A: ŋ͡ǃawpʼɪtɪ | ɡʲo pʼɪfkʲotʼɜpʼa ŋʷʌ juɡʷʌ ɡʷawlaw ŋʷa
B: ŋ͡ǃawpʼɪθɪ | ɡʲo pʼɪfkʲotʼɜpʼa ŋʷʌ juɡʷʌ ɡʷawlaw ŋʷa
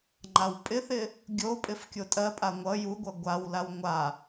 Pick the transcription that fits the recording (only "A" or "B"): B